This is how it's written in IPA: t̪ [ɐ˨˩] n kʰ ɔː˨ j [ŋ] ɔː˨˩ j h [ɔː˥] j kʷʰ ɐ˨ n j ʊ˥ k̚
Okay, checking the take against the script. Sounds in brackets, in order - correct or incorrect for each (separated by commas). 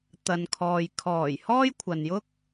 incorrect, incorrect, correct